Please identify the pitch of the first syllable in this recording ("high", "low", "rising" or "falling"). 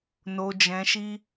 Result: low